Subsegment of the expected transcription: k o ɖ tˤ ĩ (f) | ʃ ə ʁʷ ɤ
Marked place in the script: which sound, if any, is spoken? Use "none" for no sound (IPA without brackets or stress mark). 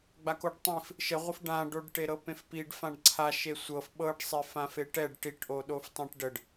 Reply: f